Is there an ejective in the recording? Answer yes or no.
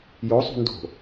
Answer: no